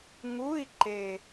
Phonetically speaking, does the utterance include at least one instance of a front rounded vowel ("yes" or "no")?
no